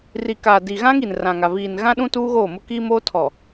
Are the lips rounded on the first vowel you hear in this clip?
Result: no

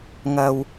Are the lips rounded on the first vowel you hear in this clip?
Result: no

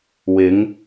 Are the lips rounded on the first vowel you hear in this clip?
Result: no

